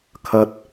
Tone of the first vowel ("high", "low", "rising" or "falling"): high